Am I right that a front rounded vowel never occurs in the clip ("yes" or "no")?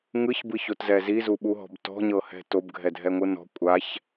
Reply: yes